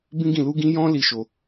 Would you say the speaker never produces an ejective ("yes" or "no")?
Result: yes